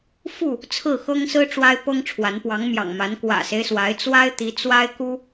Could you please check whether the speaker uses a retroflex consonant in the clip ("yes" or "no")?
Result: yes